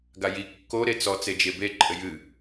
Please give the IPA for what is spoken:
ɡ a j i kː o ɾ e t͡s ɔ t͡s e d͡ʒ e b e ǃʼ ɘ j ɨ

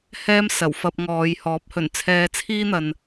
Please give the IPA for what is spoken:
h ɛː˥ m s ɐ˨˩ w f ɐ˧ p̚ ŋ ɔː˨˧ j h ɔː˨˥ p̚ h ɵ˨˩ n t͡sʰ ɛː˧ t͡sʰ iː˥ n̪ ɐ˨ n

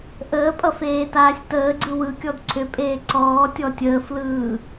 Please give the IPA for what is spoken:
ʔ əː pʼ ʌ f eː t aː sʲ t əː ɡ͡ǀ ɯ w ɯ kʲ ɔ d ǀʰ ʏ pʼ eː ǀ ɔː tʲ ɔ tʲ əː f l ɯː

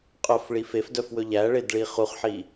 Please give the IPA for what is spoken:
qʼ œ f ɭ i f e f d œ f w ɵ ʎ æ ɭ e d ɭ i χ u χ ħ i

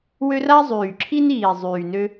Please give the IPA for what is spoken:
w ø˥ r a˥ zˤ yː˨˩ ǁʰ i˥ n iː˨˩ zˤ yː˨˩ n ø˥

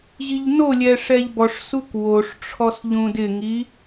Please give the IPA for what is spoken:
ʑ i ʎ n o lʲ ɛ ʂ ɛ ʎ b ɔ ʂ s u k w o ʂ ʈ͡ʂʰ ɔ s ʎ ũ d ɪ ŋ i

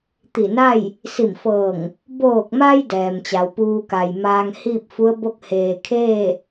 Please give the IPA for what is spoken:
t̪ i˧˩ n a˥˨ j | s i˧˩ m f ɤː˧˩ ŋ | b oː˧˩ k̚ m a˧ j d ɛː˩ m t͡ɕ a˩˧ w p uː˧ k a˩ j m aː˧ ŋ h iː˥˨ p̚ f u˧˥ ə̯ b o˥˨ k̚ h eː˩ kʰ eː˥˨

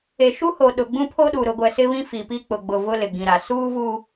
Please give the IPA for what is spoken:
e˨ ʃ u˦ h o˨ ɗ ʊ˨ ɡ͡b ũ˦ pʰ o˦ ɗ u˨ ɾ ʊ˨ ɡʷ ɛ˨ s ɪ˦ β ĩ˦ f i˨ p i˦ k͡p ʊ˨ ɡ͡b ʊ˨ v ʊ˦ l ɪ˨ ɡ ĩ˨ ɾ a˨ s uː˦ v u˦

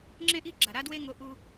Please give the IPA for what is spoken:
ŋ͡ǁ ẽ˥ ʔ i˥ ɡ͡ǁ a˩ ɾ a˥ d w e˥ ŋ o˧ ʔ u˧

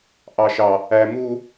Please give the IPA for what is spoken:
ʔ ɑ ʃ ɑ | æ m u

